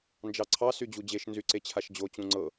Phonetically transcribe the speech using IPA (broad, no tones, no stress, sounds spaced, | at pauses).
n d͡ʒ ɑ ǀʰ ɑ s y d͡ʑ u d͡ʑ e ʃ n z y ǀ e t͡ɕʰ a ʃ d͡ʑ o t͡ɕ ũ ŋ͡ǀ ɤ